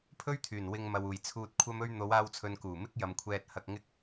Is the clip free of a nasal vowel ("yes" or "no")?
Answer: yes